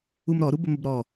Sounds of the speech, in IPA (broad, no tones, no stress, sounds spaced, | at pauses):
u m ɾ ɔ ɾ u b ə m ə b ɾ ɔ